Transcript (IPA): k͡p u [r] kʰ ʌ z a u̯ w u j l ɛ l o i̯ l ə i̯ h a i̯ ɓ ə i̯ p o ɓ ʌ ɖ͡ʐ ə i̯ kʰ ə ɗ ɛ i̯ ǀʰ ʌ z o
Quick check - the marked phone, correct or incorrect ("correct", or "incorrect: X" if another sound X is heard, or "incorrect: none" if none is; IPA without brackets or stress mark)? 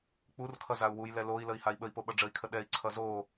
correct